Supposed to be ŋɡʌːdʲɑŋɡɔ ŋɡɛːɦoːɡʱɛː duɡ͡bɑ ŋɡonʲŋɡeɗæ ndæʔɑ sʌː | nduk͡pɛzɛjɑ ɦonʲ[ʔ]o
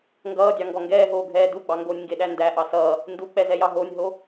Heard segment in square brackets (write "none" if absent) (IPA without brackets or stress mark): ɦ